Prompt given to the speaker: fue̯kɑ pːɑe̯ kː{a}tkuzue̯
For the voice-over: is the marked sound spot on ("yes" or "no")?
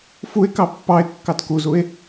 no